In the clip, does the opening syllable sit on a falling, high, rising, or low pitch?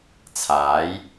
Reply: rising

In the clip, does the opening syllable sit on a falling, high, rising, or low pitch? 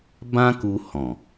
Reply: high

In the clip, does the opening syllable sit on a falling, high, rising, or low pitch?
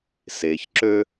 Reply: low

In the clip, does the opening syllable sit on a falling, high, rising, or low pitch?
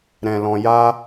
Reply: low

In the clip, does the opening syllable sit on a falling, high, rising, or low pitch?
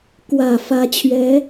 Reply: low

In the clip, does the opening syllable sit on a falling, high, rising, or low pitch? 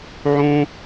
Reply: high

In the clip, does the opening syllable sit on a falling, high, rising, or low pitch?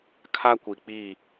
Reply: high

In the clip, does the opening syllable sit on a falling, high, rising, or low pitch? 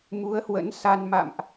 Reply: rising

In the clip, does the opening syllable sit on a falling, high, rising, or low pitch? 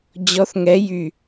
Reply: rising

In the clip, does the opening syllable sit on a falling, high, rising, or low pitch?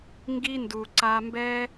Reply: high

